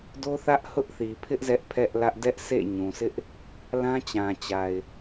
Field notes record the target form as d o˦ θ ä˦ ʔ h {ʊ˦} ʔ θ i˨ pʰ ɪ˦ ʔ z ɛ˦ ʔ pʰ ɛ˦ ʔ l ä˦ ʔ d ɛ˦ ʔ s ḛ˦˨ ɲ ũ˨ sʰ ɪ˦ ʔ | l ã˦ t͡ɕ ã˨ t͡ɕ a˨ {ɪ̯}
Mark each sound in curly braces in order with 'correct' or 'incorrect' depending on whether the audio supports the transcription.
correct, correct

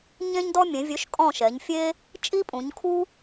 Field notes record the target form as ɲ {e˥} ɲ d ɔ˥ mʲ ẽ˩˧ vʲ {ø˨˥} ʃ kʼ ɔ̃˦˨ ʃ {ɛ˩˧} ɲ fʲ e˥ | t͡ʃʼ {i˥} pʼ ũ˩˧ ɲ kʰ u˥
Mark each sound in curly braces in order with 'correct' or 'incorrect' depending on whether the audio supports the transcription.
incorrect: ẽ˥, correct, correct, correct

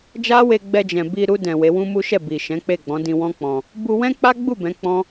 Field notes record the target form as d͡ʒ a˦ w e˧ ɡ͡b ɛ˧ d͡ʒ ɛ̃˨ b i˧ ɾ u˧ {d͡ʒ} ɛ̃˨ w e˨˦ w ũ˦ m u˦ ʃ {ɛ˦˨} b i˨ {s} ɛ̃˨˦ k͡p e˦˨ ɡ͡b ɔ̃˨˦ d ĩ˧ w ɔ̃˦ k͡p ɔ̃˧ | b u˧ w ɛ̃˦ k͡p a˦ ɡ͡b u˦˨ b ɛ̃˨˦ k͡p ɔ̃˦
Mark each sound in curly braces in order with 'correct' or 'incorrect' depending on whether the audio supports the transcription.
incorrect: d, correct, incorrect: ʃ

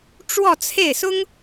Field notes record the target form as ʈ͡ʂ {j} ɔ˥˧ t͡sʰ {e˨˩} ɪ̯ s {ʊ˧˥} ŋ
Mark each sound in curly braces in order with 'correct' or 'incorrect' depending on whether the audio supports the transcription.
incorrect: w, incorrect: e˥˩, incorrect: ʊ˥

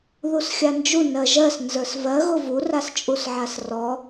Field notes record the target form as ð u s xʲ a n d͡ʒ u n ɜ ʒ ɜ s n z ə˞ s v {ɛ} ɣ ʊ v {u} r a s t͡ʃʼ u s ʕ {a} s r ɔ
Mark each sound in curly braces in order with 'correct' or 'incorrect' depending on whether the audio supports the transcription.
incorrect: ɜ, correct, correct

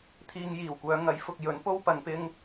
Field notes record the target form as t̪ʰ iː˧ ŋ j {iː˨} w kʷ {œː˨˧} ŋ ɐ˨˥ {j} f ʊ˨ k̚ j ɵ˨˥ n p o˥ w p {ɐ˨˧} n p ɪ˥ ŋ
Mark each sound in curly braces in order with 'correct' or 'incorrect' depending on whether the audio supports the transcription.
incorrect: iː˨˩, correct, correct, correct

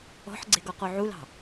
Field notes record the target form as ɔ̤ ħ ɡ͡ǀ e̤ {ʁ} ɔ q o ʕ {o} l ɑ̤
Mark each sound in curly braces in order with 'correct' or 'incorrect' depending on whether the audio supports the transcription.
incorrect: ɡ, incorrect: u

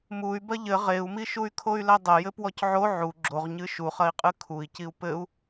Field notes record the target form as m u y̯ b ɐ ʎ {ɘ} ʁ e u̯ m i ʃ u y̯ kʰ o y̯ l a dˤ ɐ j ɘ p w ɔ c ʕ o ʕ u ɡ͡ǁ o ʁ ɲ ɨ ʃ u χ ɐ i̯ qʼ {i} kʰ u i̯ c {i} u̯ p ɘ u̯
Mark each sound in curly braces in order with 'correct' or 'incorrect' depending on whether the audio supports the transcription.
correct, incorrect: ɨ, correct

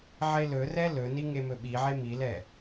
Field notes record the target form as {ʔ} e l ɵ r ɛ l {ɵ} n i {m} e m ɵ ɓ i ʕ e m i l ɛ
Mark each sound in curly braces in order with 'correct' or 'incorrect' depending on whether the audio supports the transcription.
incorrect: ʕ, correct, incorrect: ŋ

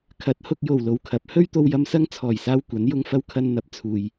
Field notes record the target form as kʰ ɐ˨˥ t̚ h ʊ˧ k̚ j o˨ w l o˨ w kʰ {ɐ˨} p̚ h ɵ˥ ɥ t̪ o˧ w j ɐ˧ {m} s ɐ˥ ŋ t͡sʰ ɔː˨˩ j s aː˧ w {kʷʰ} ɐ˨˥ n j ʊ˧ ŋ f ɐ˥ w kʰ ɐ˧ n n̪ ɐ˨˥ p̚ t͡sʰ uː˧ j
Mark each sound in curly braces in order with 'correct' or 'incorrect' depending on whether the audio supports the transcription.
incorrect: ɐ˨˥, correct, incorrect: kʷ

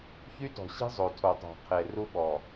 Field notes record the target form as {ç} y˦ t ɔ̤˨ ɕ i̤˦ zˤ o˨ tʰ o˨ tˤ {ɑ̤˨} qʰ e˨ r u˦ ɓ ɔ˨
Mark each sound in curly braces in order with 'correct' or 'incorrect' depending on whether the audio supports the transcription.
correct, correct

